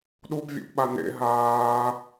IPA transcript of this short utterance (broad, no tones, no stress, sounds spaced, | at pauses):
ɗ u b vʲ ṵ ʔ ɓ a n ḛ ɦ aː